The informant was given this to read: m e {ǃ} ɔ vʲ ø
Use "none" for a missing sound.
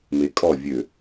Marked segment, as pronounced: kʼ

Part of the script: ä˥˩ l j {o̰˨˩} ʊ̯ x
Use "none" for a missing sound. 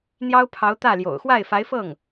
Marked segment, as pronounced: o̰˨˩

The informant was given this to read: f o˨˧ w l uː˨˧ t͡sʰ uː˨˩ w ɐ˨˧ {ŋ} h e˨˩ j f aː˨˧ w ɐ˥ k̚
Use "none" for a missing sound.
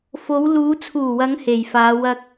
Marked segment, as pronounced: ŋ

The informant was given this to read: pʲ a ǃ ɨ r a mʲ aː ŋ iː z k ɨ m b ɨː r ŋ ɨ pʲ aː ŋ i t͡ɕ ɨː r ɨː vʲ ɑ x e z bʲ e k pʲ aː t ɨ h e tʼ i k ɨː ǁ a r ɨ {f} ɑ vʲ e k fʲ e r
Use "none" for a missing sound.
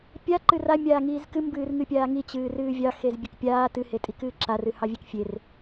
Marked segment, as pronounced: h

